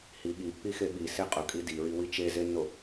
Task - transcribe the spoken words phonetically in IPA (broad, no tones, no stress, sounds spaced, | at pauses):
h i ɠ i pː i x e ɓ i s e qʼ ʊ kʼ i d i ɹ i w i t͡ʃ e z e nː o